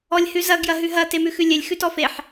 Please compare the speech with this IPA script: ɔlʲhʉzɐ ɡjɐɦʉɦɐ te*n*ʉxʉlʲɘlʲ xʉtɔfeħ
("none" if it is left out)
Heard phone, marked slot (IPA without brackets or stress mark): m